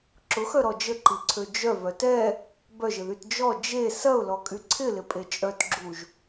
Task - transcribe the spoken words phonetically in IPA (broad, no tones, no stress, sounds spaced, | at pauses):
ǁ ʊ x œ ɾ ɔ d͡ʒ ə ǃ i ǀʰ ø d͡ʒ œ v œ t ɛ | b œ ʒ ɪ ð y t d͡ʒ ɔ d͡ʒ e s ɐ ʊ̯ l ɔ kʼ y ǀʰ ɪ l ɪ pʼ e t͡ʃʼ œ t ɡ͡ǁ u ʒ